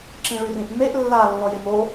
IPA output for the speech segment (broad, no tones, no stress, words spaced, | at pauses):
ǁĩɭyrĩʔmeʔ lːa lːɔjemo